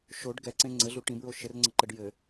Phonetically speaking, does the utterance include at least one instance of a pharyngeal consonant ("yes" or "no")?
no